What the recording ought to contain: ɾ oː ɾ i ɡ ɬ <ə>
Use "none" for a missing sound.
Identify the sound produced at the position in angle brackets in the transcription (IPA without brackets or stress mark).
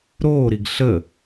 ə